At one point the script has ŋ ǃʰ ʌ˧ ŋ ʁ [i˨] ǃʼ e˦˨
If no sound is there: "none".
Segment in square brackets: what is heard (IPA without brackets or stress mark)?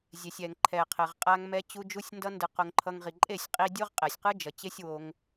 i˨